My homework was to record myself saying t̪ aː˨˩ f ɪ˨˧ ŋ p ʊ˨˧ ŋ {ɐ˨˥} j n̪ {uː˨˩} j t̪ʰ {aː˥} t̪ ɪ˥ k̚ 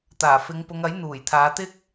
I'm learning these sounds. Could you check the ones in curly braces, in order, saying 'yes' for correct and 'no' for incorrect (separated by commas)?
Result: yes, yes, no